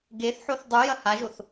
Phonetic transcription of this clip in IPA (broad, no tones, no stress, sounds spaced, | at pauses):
ɡ e θ ħ o θ dˤ u j ɐ h a ʒ o θ